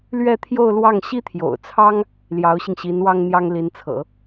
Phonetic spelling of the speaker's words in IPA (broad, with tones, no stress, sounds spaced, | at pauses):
l ɥ ɛ˥˧ t̪ʰ j o˥˧ ʊ̯ l w ɑ˥˩ ŋ ɕ i˥ t̪ʰ j o̰˨˩ ʊ̯ t͡sʰ ɑ˥ ŋ | l j ɑ˧˥ ʊ̯ ɕ i˧ ŋ ɕ i˧˥ n w ɑ˥ ŋ n̪ j ɑ˥ ŋ l i˧˥ n t͡sʰ ɤ̰˨˩˦